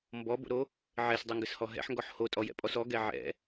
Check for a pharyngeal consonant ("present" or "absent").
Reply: present